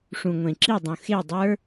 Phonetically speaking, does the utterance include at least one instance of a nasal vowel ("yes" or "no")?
yes